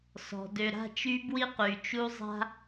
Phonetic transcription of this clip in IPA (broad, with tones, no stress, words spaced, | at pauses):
sɔ̤˨ dø˨ɾa̤˦˨t͡ʃy˦ bwi˦qy˨ t͡ʃu˦ zˤa̤˦